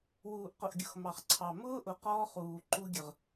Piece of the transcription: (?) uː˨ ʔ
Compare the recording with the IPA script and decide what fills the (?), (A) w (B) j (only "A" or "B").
A